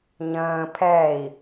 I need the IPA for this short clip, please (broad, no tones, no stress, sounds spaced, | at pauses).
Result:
ɲ ə̃ː pʰ ɛ i̯